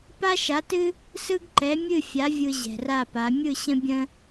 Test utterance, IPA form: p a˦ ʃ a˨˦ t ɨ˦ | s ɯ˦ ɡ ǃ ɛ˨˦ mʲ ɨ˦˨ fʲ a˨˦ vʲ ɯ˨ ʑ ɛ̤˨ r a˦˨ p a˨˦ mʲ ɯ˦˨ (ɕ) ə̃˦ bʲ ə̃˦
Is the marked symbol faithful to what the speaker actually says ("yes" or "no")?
yes